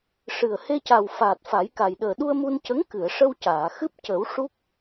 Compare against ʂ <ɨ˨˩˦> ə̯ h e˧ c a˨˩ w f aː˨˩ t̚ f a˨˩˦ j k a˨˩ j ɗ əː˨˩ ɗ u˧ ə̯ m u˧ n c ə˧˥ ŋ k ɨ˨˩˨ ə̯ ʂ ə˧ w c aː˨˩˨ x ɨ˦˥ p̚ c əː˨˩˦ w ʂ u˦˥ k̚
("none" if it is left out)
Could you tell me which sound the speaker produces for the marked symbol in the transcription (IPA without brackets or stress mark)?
ɨ˨˩